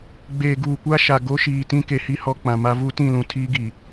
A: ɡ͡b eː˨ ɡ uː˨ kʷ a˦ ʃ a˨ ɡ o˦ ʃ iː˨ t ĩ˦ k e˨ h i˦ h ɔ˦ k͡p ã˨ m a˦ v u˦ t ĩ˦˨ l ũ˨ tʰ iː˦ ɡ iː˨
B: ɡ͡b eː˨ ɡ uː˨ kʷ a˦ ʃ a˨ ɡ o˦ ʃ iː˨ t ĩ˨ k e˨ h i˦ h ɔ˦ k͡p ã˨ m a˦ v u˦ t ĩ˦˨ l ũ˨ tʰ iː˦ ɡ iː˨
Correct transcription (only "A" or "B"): A